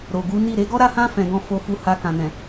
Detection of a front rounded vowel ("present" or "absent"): absent